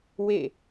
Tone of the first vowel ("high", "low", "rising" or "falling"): falling